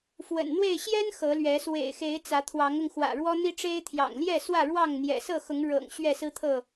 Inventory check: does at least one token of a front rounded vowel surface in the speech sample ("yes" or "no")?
no